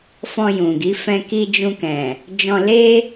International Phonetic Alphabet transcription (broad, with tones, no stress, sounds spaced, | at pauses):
f ɔ̃˧ j ũ˨ ɡ i˨˦ f ɛ̃˧ k i˧ d͡ʒ ũ˧ k ɛ̃˨ | d͡ʒ ɔ̃˧ l e˦